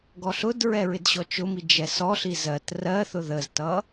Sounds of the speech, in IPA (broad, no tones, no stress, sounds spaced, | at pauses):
ɡ ɔ ɬ ʊ d ɹ ɛ ɹ ɪ d ɕ ɔ t͡ʃ ʊ m i d͡ʒ ɛ s ɔ ɬ i z ɜ t r ɜ θ ʊ ð ə z t ʌ